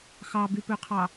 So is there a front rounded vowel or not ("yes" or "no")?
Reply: yes